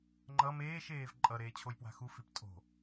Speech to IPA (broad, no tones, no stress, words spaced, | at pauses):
ŋ͡ǃʌ meːʃ eːvǃʼʌ ɾeːt͡ɕʰojpwa̤xu fiptʼo̤